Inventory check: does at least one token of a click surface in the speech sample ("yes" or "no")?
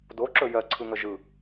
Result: yes